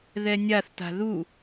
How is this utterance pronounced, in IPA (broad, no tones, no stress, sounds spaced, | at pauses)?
ð ɛ nʲ a θ t a̤ ð u